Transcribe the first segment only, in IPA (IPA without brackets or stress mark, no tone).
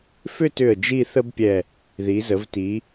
f